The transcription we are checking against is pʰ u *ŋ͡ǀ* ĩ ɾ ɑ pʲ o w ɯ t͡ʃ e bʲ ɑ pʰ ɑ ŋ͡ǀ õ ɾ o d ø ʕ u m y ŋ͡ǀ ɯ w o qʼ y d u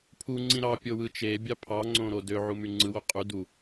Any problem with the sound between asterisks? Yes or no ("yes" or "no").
no